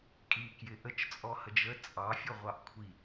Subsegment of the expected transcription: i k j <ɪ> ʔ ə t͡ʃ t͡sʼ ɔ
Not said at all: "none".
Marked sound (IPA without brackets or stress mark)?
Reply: ɪ